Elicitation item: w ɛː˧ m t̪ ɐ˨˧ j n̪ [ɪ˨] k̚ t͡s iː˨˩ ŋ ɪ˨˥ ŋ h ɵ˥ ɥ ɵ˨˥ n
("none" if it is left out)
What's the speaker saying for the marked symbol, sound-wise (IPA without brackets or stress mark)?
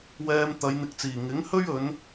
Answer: ɪ˨